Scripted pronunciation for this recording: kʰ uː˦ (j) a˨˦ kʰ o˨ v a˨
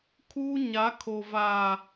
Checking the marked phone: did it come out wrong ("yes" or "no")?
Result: yes